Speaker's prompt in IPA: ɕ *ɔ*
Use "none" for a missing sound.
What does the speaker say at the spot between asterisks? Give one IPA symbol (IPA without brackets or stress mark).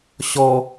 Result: ɔ